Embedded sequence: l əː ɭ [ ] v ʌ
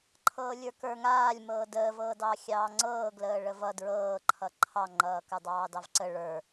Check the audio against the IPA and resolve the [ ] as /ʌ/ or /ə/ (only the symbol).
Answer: ə